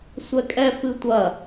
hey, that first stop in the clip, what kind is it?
ejective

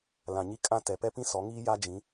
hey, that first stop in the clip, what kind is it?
ejective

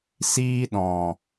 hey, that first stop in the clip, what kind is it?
implosive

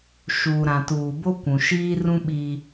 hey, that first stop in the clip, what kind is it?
plain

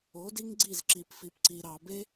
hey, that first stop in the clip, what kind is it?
plain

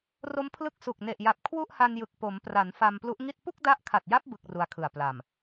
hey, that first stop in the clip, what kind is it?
aspirated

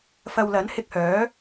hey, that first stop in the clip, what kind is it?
plain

